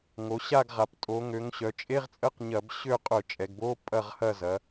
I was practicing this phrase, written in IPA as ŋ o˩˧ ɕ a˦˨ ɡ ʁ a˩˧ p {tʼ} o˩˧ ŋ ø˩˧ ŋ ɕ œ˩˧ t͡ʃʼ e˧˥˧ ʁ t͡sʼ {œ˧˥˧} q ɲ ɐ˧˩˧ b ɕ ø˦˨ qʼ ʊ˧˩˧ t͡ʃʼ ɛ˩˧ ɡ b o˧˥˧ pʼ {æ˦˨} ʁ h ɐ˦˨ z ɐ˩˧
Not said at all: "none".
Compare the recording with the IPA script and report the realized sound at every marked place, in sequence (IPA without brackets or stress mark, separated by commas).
tʼ, ə˧˥˧, ɐ˦˨